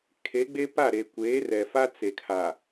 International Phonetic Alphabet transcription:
kʰ e˨˦ ɡ͡b e˦ p a˦˨ ɾ e˨ kʷ eː˨˦ r ɛ˨ f a˦ t͡s e˨ kʰ a˨

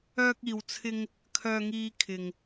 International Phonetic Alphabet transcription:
œː˧ k̚ iː˨ w t͡sʰ ɪ˧ ŋ | kʰ œː˧ ŋ iː˧ kʰ ɪ˨ ŋ

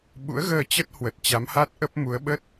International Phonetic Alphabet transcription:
ɓ ṵ˧˥ ə̯ ɣ əː˧ t͡ɕ ə˦˥ t̚ h w ə˨˩ t̚ t͡ɕ a˨˦ m h a˦˥ t̚ ʔ ə˦˥ p̚ m u˨˦ ə̯ ɓ ə˦˥ t̚

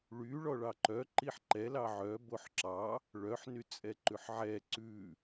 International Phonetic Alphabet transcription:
ɭ y ɭ ɔ ɭ ɑ ǃ œ ǃ i ħ ǃ ɛ l ɑ ʕ œ b o ħ ǁ ɑ | ɭ œ ħ n y t͡sʼ ɛ ǃ ʉ ħ ʕ ɛ ǀ ʉ

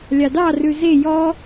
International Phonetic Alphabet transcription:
lʲ ɑ d ɑ r ʉ z e j ɔ

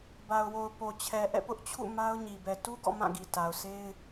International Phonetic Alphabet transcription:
b a˨ ʊ̯ w o˨ ʊ̯ p o˨ t͡ɕʰ ɛ˨ ʔ ɛ̰˦˨ p ʊ˦ ʔ t͡ɕʰ ṵ˦˨ m a˦ ʊ̯ ɲ i˨ b ɛ˨ t u˦ ɡ ɔ̰˦˨ m ã˦˨ ɡ i˨ t a˨ ʊ̯ sʰ e˦ ɪ̯

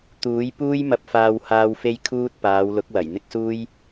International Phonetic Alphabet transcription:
t̪ uː˨˥ j p uː˥ j m ɐ˧ p̚ f aː˧ w h aː˧ w f e˧ j kʰ uː˧ t̚ p aː˨˧ w l ʊ˨˥ k̚ w ɐ˨˩ j n̪ ɪ˥ k̚ s uː˥ j

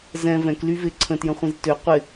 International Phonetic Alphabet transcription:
z ɛ̃ v ɛ̃ k l y v ɪ ǀʰ ə̃ t j ə̃ χʷ ĩ z t ø qʷ ɪ

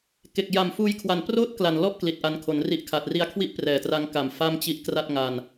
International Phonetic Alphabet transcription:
k e˨˩ k̚ j a˨˩ m f uː˧ j kʰ w a˨˩ n p r oː˥˩ t̚ k l a˨˩ n l ɔ˥˩ ʔ k l i˨˩ t̚ ʔ a˧ n kʰ o˩˦ n r i˦˥ ʔ kʰ a˨˩ t̚ r i˧ a̯ kʰ w i˥˩ ʔ p r ɛː˨˩ t r a˦˥ ŋ k a˨˩ m f a˥˩ m t͡ɕ i˦˥ ʔ k r a˥˩ t̚ ŋ a˧ n

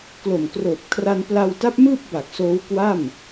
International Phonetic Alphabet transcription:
k l o˨˩ m k r oː˨˩ p̚ kʰ r a˧ n p l a˧ w t a˦˥ p̚ m ɯː˥˩ p̚ b a˨˩ k̚ s oː˦˥ w k w a˥˩ m

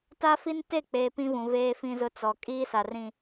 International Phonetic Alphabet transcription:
t a˦ f i˦ n t e˦˨ k͡p eː˨ p ĩ˦ v ũ˨ v eː˦ f ĩ˦ z ʊ˦ t͡s ɔ˨ kʼ iː˦ s a˨ r ĩ˨

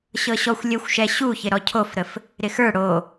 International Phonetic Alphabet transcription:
ɕ ɤ ɕ ɔ xʷ lʲ ə xʷ ʃ ɛ ɕ u ç ɪ ɾ ɔ cʰ o f ɾ ə f | ɾ ɪ x ə˞ ɽ o

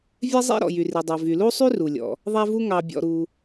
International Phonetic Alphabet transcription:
vʲ ɛ˥ zˤ ḛ˥ ɾ ɔ̰˩ j y˩ r i˩ dˤ œ˩ v y˩ l u˥ sˤ y˥ r u˩ lʲ ɔ̰˩ | ðˤ æ˥ v u˥ ŋ ɑ˩ bʲ ɔ̰˩ ɾ u˩

